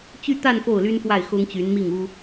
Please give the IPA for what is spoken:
t͡ɕy˥˧t̪a˥˧n fo˥˩ʊ̯ly˥nfwa˥˩ɪ̯ xʊ˥ŋt͡ɕy˧˥nmi˥˩ŋu˥

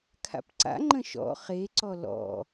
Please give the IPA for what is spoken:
kʰa̰pǀa̰ŋ͡ǃə̃ ʃɔ̰ χeǀɔ lɔ̰

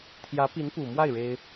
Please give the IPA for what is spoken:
t̪ʰjä˧˥pi˧˥npu˨˩mwa˥˩ɪ̯ ɻe˥ɪ̯

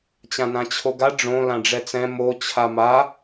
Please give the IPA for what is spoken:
t͡ɕãnãt͡ɕʰoɡa ɖ͡ʐõ lãɖ͡ʐɛt͡sɛ̃ mo t͡ɕʰama

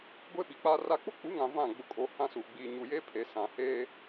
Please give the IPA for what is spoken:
ɡʷe˦ɓi˨k͡pa˦ra˦ k͡pʊ˦k͡pu˨˦ŋã˨ vã˦˨ ɡ͡bʊ˨kʼo˨ hã˦su˨ ɡ͡biː˦ ɲu˨je˦ pʰe˨sã˨ heː˦

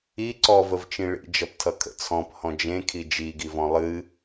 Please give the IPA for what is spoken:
i ǀɔvəvt͡ʃĩ ɭḭd͡ʒʌptʰʌ kʰə̰t͡sʰɔ̃p hɔ̃d͡ʒẽkʰi d͡ʒiɡivɔ̃ lˠɨ

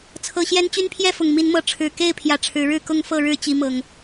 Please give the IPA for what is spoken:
t͡sʰɤ˨˩ɕjɛ˦n t͡ɕy˦npʰjɛ˥˨fʊ˨˩ŋ mi˨˦nmɤ˨˦ʈ͡ʂʰɻ̩˨˩ ke˥˨ɪ̯ pʰjä˨˦ʈ͡ʂʰɻ̩˨˦ɻɻ̩˥˨ kʊ˥˨ŋfɤ˥˨ɻɻ̩˥˨ t͡ɕi˦mɤ˨˩ŋ

